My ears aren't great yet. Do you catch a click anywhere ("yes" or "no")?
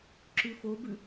yes